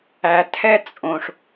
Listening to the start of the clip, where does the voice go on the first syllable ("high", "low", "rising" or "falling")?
low